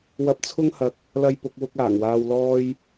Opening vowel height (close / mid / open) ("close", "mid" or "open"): open